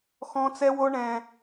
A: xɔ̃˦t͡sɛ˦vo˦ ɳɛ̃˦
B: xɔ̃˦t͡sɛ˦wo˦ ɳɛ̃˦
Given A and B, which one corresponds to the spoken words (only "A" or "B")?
B